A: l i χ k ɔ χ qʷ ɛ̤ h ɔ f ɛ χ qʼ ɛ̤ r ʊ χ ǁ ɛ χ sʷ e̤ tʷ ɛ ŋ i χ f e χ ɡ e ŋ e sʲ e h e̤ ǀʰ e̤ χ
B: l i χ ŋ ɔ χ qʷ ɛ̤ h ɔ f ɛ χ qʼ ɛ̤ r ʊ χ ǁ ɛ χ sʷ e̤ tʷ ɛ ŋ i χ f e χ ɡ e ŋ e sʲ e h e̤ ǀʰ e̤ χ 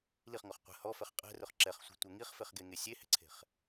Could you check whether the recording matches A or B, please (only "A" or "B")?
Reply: B